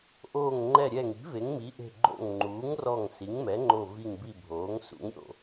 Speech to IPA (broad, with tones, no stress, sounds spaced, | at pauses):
ʔ oː˧˩ ŋ ŋ͡ǃ ɛ˧˩ ɾʲ ɛ˧˩ ŋ i̤˩˥ v e˩˥ ŋ m i˩˥ ʔ e̤˧˩ ɡ͡ǃ o̰˧˩ ŋ ŋ͡ǃ uː˩˥ ŋ r ɔ˧˩ ŋ s i˩˥ ŋ m ɛ˩˥ ŋ͡ǃ o˧˩ v i˧˩ ŋ b i˧˩ bʱ oː˩˥ ŋ s ṵ˩˥ ŋ ɾʲ o̰˧˩